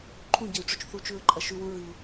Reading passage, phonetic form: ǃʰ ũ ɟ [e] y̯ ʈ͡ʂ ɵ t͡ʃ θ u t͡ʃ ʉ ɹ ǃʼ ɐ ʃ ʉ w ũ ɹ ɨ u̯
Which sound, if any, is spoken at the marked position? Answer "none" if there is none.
e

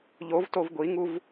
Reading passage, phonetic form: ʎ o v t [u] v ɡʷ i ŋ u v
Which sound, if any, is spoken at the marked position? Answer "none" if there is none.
o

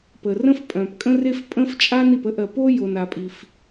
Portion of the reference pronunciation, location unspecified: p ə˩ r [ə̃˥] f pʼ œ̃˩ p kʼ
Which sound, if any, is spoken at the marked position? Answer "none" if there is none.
ə̃˥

